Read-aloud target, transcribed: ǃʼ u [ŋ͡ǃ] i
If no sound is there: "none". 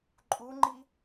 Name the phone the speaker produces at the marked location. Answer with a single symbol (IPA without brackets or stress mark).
ŋ͡ǃ